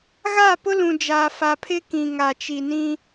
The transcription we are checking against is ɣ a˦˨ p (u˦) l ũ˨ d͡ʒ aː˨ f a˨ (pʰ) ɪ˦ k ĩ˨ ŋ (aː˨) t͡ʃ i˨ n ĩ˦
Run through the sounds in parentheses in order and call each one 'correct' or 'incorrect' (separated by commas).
incorrect, correct, incorrect